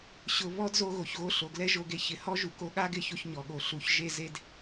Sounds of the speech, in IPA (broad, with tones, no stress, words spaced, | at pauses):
ɕʊ˧ βɔ˦dzo˧ ɣo˨çɣo˧ ɬo˨ɡlɛ˦ ʒo˧ɡe˧ çɪ˨hɔ˦ ʒu˨ko˧ɠa˦ɡɪ˧ ço˦çɲɔ˨ɠo˧ɬu˧ç ʒe˧ze˧d